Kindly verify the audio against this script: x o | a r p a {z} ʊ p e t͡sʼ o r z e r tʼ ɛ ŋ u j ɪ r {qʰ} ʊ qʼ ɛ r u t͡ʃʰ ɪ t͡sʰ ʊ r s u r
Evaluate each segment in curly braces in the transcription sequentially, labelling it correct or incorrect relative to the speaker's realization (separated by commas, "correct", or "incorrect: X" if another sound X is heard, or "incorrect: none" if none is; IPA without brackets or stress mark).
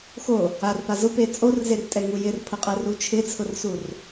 correct, incorrect: pʰ